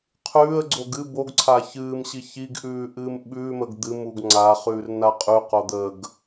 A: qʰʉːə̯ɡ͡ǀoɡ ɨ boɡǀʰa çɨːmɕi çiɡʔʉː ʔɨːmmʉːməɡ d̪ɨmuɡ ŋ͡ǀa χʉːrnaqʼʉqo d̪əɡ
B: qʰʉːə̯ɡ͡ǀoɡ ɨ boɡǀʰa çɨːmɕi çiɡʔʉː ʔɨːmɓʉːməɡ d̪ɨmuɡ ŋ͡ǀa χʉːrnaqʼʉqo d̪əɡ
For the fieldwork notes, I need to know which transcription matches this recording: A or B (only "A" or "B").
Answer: B